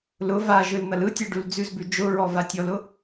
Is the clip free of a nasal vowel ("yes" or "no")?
yes